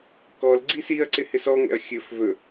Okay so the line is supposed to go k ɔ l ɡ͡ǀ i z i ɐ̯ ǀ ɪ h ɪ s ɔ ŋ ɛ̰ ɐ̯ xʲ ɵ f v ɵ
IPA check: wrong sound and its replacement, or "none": z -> s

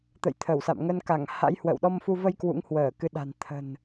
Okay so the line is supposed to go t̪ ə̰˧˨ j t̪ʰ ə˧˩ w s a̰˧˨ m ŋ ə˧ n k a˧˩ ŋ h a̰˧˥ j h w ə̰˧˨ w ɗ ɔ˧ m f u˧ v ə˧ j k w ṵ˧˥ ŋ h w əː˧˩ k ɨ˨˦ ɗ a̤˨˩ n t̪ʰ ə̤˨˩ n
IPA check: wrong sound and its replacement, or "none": none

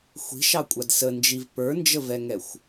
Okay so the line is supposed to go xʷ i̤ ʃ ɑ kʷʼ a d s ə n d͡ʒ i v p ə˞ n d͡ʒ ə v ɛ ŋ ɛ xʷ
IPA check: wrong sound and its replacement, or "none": none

